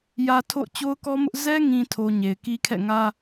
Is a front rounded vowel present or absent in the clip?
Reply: absent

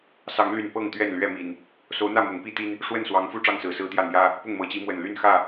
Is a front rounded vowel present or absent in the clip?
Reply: present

